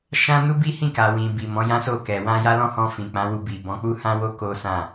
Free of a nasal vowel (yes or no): no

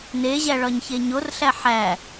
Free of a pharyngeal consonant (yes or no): no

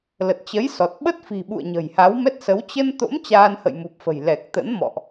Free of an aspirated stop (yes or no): yes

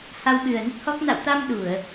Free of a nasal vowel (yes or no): yes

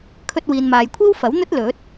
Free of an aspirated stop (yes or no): no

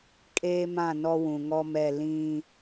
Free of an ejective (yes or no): no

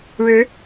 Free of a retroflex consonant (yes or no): no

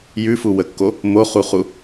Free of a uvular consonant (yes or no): no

